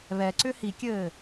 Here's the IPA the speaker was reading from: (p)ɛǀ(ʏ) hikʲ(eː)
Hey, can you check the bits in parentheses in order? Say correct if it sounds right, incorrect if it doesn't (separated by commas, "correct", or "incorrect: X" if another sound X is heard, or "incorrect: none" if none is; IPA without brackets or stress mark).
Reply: incorrect: β, correct, incorrect: ɘː